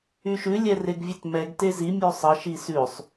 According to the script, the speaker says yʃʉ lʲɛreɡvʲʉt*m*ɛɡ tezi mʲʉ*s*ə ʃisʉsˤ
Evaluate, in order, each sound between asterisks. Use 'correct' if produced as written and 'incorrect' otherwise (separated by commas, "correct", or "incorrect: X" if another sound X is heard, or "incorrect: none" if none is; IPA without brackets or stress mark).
correct, incorrect: sˤ